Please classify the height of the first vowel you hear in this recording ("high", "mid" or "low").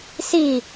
high